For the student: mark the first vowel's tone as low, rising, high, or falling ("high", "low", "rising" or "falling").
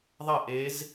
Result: falling